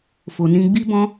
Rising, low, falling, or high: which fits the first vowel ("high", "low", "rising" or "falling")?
low